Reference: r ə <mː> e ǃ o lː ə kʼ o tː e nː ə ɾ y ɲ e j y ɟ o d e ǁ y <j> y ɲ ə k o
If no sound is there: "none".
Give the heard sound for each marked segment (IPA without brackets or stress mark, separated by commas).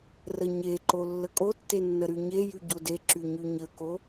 ɲ, ɲ